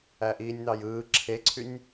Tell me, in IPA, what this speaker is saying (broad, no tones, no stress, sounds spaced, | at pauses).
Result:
æ ʔ iː nʲ n̪ ɑ j ɯː ǁʰ e ǀʰ y nʲ